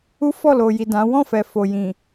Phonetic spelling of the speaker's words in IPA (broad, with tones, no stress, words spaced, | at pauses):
u˦fɔ˦˨lo˨ji˨ dã˨˦ wɔ̃˦˨fɛ˨ fo˨jĩ˨